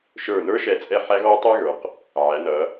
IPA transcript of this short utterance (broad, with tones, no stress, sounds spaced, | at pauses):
ʃ ə˞˧˩ n ə˞˥ ʃ ɛ˧ t͡sʼ ɛ˥˧ ħ æ˥ ɣ ɔ˥ tˤ ɛ˥ ɣ ə˞˩˧ q | ʕ æ˩˧ n ʌ˩˧